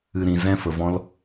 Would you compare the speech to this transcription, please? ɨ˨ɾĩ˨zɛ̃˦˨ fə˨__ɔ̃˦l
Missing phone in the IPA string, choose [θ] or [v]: v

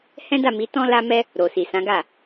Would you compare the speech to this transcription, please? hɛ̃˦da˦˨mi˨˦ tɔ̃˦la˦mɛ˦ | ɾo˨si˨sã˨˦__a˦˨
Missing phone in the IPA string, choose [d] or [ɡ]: ɡ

